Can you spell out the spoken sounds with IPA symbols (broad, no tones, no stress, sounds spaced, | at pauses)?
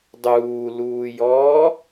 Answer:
dˤ uː l uː j ɔː